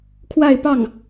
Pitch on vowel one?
falling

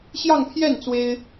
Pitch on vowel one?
falling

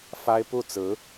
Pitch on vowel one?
high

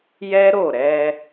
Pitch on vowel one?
high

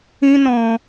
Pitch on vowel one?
high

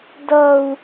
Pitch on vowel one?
high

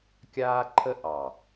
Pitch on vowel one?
high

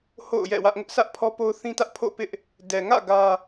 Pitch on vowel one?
falling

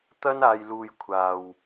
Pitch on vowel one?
high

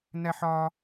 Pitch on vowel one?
high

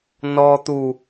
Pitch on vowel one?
high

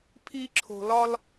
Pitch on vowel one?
high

